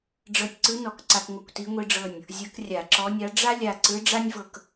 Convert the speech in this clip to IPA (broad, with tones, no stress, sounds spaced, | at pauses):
ɖ͡ʐ ɤ˧ tʲ ǀ ɯ˧˥ n ɔ˧˩˧ k ǀ a˧ k ŋʷ ɯ˧˩ kʷ t i˧˥ ŋʷ i˧ ɖ͡ʐ ɤ˧˩ nʲ | zʲ ɤ˧˥ k rʲ a˧˩˧ ǁ ɔ˧˥ nʲ a˧˥ ɖ͡ʐ a˥ lʲ a˧˩ ǀ ɯ˧˥ ɖ͡ʐ a˥ nʲ v ɤ˧˩ k